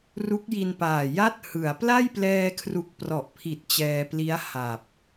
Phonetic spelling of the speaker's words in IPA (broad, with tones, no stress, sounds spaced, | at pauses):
r u˦˥ k̚ j i˧ n p aː˨˩ j a˦˥ t̚ h ɯ˩˦ a̯ p l a˥˩ j p l ɛː˧ kʰ r u˨˩ k̚ p r ɔ˨˩ ʔ pʰ i˨˩ t̚ t͡ɕ ɛː˧ p l i˦˥ a̯ h a˨˩ p̚